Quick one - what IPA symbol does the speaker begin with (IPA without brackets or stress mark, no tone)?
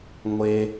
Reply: ŋʷ